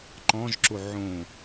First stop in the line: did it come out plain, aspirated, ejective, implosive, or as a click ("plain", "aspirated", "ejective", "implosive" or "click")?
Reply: click